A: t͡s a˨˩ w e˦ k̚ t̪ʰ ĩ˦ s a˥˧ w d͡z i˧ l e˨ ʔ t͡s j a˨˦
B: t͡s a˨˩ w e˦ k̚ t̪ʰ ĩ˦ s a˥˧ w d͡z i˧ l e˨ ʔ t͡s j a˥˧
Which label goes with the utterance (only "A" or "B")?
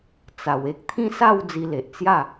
B